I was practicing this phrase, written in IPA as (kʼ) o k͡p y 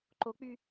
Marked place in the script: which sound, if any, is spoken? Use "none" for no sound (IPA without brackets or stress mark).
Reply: ǃ